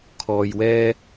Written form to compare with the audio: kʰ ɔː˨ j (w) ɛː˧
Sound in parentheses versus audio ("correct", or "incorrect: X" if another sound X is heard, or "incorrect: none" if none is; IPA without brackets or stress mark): correct